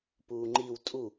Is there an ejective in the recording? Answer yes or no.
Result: yes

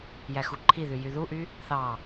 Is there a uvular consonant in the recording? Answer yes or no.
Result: no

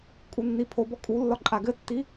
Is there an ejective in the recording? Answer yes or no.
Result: yes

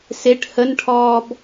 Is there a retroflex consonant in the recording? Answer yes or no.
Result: yes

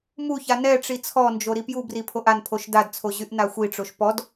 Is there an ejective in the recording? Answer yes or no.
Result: no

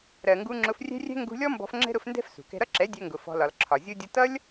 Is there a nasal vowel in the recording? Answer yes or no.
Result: no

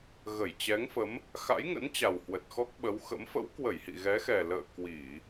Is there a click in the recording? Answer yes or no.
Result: no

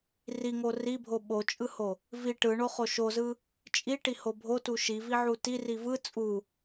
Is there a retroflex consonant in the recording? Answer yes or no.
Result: yes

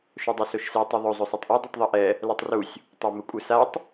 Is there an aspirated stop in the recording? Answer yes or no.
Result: no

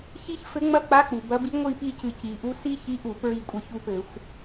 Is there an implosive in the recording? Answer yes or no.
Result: no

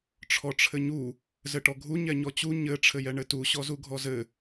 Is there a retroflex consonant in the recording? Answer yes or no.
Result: yes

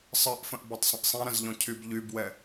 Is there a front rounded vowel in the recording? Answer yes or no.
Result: yes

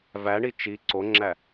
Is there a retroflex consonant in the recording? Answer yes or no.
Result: yes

